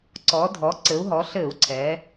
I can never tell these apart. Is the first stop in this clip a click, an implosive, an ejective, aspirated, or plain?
click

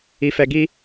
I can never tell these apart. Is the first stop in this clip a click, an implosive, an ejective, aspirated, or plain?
plain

